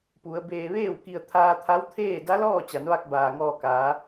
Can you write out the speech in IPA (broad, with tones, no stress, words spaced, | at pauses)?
pu˩˧ə̯ beː˧ ʋeː˥˨wki˧ə̯ t̪ʰaː˧t̪ʰa˧˥w t̪ʰeː˥˨ da˧˥lɔː˥˨t͡ɕa˩˧nʋa˧k̚ baː˩ŋɔː˧kaː˩˧